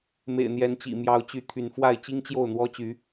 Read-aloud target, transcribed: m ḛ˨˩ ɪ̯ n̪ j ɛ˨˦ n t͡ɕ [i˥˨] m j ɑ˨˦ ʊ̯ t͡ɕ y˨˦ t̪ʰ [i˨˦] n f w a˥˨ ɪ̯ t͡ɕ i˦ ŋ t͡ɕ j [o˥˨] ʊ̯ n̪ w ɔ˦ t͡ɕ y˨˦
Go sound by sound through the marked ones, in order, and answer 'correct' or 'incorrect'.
incorrect, incorrect, correct

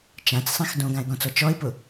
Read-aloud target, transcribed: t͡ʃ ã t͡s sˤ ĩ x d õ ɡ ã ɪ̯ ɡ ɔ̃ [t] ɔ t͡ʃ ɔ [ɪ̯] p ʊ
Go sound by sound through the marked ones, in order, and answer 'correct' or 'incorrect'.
incorrect, correct

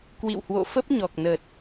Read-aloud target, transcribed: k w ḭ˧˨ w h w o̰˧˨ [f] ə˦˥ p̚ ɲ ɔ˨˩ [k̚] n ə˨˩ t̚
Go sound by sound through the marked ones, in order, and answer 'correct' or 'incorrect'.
correct, correct

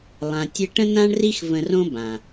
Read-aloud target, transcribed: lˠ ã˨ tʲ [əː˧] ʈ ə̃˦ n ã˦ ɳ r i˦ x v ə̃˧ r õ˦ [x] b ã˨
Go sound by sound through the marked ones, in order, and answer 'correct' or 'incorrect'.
incorrect, incorrect

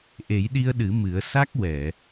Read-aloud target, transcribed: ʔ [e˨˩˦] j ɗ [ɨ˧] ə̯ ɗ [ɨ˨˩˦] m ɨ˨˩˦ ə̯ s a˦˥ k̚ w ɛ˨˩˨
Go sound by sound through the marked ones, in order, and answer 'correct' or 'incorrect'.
correct, incorrect, correct

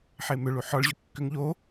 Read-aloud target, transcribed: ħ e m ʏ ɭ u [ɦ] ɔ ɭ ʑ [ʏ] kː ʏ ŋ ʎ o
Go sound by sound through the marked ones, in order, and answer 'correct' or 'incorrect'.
incorrect, correct

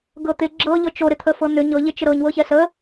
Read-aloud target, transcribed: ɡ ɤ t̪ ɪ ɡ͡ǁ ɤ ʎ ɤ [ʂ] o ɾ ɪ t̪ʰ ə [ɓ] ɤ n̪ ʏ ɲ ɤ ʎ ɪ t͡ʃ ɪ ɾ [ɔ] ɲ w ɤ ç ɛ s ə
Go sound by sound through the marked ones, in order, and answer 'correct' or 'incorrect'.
incorrect, incorrect, incorrect

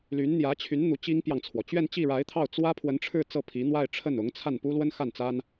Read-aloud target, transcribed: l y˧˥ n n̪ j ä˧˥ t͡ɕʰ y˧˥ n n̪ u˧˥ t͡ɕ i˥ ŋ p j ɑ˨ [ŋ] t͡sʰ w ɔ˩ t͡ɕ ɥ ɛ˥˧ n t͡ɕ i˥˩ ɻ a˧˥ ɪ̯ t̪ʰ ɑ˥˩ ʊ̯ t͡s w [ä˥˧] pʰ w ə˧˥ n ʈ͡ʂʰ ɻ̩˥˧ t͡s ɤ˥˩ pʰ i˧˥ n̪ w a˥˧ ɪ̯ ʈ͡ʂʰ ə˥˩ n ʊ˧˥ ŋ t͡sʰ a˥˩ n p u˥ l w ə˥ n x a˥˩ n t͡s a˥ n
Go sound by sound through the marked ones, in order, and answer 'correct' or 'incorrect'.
correct, incorrect

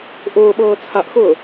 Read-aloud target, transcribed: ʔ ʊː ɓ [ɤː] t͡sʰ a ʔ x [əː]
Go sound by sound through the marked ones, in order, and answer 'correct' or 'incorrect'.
correct, incorrect

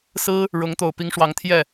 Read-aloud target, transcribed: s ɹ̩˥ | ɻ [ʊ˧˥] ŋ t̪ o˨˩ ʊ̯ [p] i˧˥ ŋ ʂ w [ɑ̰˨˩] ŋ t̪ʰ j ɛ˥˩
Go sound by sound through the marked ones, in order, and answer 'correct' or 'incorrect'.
correct, correct, incorrect

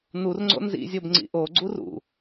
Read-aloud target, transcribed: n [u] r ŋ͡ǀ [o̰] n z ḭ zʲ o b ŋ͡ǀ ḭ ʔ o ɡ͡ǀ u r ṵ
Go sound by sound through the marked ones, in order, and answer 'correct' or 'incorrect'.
correct, correct

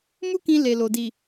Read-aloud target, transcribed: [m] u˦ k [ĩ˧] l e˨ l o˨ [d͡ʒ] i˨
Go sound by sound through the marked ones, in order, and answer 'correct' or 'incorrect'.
correct, correct, incorrect

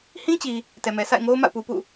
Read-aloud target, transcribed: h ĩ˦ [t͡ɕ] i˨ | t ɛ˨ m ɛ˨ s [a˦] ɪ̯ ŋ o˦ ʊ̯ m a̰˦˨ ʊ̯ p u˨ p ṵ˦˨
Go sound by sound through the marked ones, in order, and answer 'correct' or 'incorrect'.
correct, incorrect

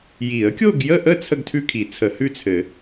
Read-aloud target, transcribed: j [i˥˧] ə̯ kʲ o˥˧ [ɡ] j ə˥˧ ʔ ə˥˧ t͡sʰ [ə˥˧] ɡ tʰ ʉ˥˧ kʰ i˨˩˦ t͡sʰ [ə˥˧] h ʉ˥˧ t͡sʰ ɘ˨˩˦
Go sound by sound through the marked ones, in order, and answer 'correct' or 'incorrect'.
incorrect, correct, correct, incorrect

